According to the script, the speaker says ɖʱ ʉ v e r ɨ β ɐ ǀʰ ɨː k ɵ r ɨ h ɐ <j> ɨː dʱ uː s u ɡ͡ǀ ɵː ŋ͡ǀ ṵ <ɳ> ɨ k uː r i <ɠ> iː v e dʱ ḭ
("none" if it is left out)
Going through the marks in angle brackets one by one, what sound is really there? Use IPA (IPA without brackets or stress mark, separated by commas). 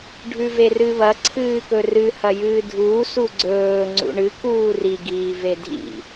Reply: j, ɳ, ɡ